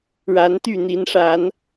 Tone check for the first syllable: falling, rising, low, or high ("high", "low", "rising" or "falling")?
rising